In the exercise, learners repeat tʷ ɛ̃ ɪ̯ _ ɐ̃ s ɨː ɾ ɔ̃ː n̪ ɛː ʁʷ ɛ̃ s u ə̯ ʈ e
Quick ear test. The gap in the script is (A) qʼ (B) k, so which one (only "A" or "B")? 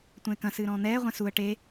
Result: B